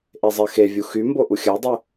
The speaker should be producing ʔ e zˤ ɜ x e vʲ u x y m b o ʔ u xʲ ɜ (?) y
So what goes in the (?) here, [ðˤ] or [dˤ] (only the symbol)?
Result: dˤ